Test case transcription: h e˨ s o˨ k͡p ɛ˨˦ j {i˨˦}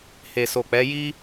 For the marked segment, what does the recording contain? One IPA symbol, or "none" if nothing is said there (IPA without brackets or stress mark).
i˦